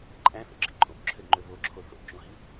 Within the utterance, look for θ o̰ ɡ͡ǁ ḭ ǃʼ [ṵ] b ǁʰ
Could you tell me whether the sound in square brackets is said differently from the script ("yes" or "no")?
yes